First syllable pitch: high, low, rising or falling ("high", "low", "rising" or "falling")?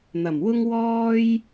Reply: low